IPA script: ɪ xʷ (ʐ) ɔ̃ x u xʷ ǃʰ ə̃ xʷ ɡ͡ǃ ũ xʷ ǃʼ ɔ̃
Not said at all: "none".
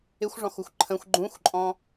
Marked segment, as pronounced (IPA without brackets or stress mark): ʐ